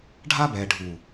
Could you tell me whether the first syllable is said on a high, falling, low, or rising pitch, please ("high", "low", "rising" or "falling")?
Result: high